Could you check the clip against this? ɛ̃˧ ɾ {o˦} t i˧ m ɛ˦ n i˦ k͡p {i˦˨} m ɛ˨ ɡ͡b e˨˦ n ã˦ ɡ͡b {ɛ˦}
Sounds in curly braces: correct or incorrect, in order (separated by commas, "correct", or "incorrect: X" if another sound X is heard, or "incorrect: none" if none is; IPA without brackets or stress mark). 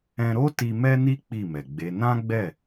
correct, correct, incorrect: ɛ˦˨